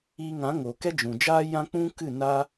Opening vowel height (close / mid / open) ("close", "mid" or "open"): close